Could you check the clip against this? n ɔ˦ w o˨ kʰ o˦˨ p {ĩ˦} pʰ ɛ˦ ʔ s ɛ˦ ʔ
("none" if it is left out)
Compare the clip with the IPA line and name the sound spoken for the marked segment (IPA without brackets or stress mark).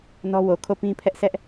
ĩ˦